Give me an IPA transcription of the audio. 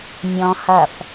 mʲ ɔ̃ h ɐ f

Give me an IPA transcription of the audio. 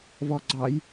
v ɔ ɡ͡ǀ ɑ j

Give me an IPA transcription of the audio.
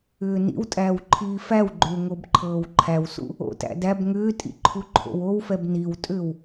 ʏː n ḭ w tʼ æː w ǃʰ iː f æ w ɡ͡ǃ ʏː ŋ o b ǃʰ ɤː w ǃʰ æ w s ṵ | o̰ t æ̰ d æ b ŋ ʏː tʼ ḭ ǃʰ u ǃʰ o̰ w o w f ɛ b n i w tʼ ʏː w

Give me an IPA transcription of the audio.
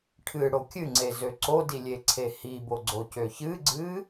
ʈʰ ɨ ɽ o kʲ ɨ ŋ͡ǀ e z ø ǀ o d i lʲ e ǀʰ e h i b o ɡ͡ǀ o c ø ç ɨ ɡ͡ǀ ɨ

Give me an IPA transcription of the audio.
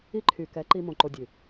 i˦ ǃʰ y˨ k ɛ˨˦ ǃ i˧ m õ˨ ǃ o˧ dʲ ʉ˨

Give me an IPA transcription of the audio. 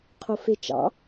qʰ o f e t͡ʃ ɑ̰

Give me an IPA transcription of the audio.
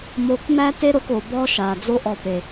m o˧ k m æ˦ t e˦ ɾ o˧ k o˨ b ɔ˦ ʃ a˨ d͡z o˦ ʔ ɔ˧ p e˨

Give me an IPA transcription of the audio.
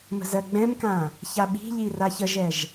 m ə̤ z ɜ ɡ͡b ɛ̃ m k ã | ç a ɓ i̤ ʎ i r a ç ə ʒ ɛ ʒ

